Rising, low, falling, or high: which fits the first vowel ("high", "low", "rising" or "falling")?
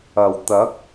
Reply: low